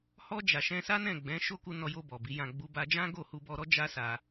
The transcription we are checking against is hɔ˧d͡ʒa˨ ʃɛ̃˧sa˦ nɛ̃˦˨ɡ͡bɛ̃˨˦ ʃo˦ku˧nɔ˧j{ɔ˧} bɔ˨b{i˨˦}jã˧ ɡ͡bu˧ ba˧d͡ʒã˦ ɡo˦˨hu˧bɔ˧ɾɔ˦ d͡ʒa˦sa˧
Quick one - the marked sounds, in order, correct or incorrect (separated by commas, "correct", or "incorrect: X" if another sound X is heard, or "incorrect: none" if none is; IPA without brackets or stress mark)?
incorrect: o˧, correct